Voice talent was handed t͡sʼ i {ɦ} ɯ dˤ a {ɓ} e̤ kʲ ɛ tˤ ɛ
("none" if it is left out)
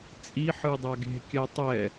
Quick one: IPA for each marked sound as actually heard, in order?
ħ, ɡ

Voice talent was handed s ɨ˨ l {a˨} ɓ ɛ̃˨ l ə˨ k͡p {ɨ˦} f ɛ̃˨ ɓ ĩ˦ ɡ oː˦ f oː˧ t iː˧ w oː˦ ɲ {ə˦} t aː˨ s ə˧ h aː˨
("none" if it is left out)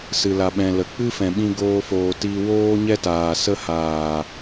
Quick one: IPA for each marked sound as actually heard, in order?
a˨, ɨ˦, ɛ˦

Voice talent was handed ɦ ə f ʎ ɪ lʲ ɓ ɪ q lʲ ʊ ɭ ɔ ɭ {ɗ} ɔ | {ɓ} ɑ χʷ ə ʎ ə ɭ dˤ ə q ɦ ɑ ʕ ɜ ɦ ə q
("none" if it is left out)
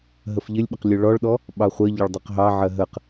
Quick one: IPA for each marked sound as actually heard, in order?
ɗ, ɓ

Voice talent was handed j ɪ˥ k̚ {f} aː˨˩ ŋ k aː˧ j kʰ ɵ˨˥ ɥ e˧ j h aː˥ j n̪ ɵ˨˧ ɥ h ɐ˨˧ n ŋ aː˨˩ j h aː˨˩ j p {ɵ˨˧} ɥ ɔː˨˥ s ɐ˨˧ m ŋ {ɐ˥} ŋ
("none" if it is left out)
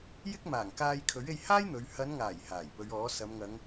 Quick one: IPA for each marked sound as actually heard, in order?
m, ɵ˨˧, ɐ˨˧

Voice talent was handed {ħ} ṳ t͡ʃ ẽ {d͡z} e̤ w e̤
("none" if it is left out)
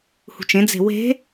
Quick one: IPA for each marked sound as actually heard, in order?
h, d͡z

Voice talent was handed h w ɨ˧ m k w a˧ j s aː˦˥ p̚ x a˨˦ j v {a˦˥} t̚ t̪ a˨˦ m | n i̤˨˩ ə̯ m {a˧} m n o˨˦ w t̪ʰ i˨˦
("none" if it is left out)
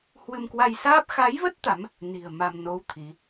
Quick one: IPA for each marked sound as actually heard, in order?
ə˦˥, a˧

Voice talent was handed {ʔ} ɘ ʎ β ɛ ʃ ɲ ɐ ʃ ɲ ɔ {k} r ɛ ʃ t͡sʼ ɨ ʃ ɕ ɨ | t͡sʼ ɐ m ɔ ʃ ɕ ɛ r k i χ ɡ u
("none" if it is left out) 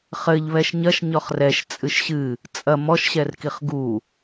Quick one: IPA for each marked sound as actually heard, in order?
χ, χ

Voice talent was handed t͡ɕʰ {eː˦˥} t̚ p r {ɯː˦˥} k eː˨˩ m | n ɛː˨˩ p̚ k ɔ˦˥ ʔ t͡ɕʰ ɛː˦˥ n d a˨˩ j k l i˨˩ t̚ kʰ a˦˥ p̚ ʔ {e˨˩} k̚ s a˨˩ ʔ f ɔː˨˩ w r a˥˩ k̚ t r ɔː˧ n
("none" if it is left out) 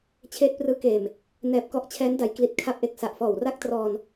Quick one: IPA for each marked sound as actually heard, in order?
eː˦˥, ɯː˦˥, e˨˩

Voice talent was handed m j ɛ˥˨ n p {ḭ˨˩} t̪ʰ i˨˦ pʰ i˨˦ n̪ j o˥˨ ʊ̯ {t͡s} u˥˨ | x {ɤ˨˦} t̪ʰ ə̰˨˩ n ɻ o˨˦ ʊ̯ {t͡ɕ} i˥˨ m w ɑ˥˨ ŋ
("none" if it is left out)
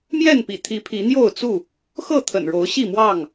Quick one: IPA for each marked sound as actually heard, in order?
ḭ˨˩, t͡s, ɤ˥˨, ɕ

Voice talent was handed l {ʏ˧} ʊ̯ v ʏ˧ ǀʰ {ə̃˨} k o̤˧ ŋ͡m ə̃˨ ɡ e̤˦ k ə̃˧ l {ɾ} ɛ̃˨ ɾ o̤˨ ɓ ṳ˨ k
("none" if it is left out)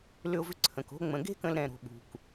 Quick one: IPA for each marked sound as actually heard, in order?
ʏ˧, ə̃˨, ɾ

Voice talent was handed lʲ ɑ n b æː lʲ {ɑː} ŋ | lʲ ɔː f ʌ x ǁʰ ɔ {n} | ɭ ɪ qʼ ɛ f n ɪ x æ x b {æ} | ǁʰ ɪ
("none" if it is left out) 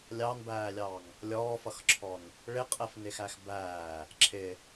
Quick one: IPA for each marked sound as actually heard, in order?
ɑː, n, æː

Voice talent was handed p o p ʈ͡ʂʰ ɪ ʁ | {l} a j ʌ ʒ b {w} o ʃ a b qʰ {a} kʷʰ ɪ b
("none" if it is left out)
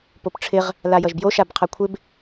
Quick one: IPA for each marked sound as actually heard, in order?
l, j, a

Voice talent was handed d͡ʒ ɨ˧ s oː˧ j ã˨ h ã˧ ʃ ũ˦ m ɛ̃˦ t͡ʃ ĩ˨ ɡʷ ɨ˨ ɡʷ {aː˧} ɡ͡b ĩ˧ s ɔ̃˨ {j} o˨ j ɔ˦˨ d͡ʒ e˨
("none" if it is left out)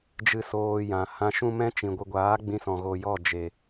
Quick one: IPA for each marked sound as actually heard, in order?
aː˨˦, ɣ

